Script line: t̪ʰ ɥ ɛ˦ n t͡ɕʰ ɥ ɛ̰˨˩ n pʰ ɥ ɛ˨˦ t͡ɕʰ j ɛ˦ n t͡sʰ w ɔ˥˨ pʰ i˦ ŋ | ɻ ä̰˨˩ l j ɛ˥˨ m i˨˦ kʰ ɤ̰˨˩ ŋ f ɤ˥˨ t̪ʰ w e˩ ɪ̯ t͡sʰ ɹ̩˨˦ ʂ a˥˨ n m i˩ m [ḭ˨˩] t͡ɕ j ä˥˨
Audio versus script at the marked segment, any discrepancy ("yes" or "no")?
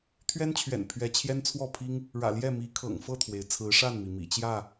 no